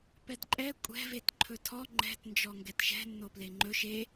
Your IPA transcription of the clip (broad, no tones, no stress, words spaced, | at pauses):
pɛdǃʼɛ kʷʼɛ̤ vetǃʰɵtʰɔ ŋ͡ǃɛ̤t nd͡ʒɔŋɡɛtʃɛ̤ nːopleŋ͡ǃɵ ʃe